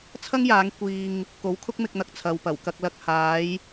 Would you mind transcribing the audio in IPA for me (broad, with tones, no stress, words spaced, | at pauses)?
t͡sʰɐ˥ŋjaː˨˧ŋ kʷiː˧ŋ | ko˨˧wkʰʊ˥k̚mɪ˧k̚n̪ɐ˨k̚ t͡sʰɐ˨wpɐ˨˩w kɐ˧k̚lɐ˧k̚ haː˨˧j